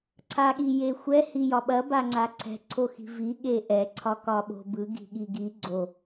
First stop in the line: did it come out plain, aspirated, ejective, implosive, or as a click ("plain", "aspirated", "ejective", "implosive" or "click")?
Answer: click